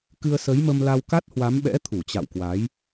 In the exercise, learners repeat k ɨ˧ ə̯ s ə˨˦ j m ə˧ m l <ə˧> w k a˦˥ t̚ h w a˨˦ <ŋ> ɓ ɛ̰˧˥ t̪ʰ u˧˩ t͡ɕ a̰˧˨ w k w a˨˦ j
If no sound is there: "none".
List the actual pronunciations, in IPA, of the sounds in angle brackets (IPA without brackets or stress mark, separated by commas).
a˧, m